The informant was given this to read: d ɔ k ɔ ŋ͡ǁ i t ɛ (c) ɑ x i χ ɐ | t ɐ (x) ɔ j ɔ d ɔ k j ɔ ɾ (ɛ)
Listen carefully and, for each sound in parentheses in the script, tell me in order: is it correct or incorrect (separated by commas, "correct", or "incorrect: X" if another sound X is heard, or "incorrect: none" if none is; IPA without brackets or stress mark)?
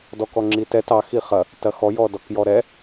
incorrect: t, correct, correct